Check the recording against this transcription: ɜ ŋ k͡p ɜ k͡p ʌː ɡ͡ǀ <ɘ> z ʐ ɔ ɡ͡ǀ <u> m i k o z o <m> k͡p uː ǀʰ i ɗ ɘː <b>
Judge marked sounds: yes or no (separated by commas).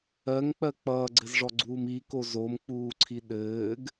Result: yes, no, yes, no